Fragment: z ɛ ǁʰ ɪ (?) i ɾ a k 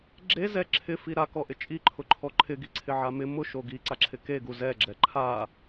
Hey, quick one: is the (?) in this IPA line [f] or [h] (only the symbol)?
f